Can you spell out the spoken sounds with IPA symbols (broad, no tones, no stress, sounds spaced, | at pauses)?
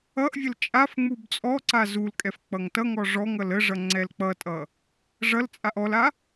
ʌ ʔ vʲ ə l t͡ʃʼ a f ŋ͡m u b t͡sʼ ɔ ǀ a z u l kʼ ɛ f k͡p ʌ ŋ t ʌ ŋ ɔ ʐ ɔ ŋ ʌ l ə ʐ ʌ ŋ͡ǀ ɛ l k͡p ʌ tʼ ʌ | ʐ ʌ l t͡sʼ a ʔ ɔ l a